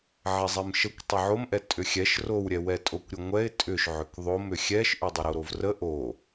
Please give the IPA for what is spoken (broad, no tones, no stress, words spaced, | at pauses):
ʕɛzˤɛmʃəkʷ tˤʏʕomʔɛ tʼʏxʲɛʃ rowɾʲɛ wɛtʼokʷɾʲəŋʷɛɪ̯ tʼʏʃ ʕʏkðˤomʏ xʲɛʃʔʏ dˤəɾoɾovrə ʔo